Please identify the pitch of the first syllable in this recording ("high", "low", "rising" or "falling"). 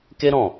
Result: high